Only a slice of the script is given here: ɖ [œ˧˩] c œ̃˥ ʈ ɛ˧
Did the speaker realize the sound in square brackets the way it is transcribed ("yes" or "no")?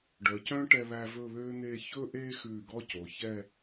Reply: no